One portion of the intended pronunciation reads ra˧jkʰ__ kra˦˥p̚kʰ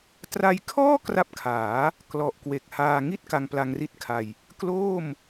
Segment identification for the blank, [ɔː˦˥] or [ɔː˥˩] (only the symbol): ɔː˥˩